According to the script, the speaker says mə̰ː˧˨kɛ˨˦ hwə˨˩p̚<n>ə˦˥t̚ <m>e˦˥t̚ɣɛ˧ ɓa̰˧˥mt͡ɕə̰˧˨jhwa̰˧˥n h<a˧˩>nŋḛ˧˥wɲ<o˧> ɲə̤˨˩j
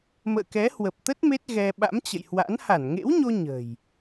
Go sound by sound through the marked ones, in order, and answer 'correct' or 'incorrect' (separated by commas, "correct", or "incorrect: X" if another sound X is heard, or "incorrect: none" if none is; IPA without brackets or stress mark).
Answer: incorrect: t̪, correct, correct, correct